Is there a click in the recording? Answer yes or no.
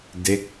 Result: no